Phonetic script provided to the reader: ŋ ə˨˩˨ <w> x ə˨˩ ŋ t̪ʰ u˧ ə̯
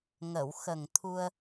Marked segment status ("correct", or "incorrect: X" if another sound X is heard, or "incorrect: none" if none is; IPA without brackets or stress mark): correct